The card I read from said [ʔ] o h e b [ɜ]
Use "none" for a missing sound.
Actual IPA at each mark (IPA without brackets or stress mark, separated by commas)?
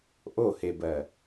ʔ, ɜ